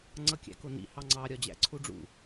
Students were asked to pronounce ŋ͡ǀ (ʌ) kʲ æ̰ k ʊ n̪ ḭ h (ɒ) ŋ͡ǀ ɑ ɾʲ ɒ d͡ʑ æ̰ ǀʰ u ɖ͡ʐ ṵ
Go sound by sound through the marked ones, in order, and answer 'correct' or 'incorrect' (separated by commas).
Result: correct, incorrect